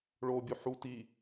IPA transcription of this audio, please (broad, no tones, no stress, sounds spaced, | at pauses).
ɭ o bʲ u ħ u t i